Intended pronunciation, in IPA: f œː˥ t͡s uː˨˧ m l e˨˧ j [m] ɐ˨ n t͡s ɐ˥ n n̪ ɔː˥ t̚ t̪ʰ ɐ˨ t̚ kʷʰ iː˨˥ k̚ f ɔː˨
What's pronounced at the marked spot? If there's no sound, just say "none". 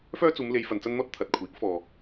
f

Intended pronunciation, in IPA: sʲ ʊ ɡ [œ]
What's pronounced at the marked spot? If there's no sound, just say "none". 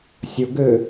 ø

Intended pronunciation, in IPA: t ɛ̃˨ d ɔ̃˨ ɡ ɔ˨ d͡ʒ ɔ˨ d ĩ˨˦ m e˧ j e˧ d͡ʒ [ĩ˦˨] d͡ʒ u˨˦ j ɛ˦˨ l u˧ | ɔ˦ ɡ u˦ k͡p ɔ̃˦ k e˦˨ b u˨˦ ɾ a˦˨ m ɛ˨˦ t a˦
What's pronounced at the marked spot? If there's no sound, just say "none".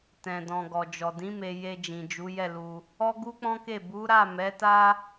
ĩ˨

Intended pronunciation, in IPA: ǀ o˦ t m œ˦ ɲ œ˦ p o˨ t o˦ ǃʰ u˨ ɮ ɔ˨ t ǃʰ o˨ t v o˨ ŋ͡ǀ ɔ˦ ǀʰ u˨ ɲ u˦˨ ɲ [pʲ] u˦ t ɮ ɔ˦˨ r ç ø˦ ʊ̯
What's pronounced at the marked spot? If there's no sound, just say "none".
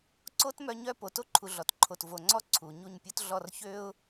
pʲ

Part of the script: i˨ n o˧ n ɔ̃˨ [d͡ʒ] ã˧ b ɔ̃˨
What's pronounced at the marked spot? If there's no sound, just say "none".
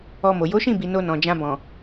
d͡ʒ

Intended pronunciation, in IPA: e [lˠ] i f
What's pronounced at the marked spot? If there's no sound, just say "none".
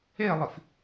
lˠ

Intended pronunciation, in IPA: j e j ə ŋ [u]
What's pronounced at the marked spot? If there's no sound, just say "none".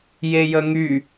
y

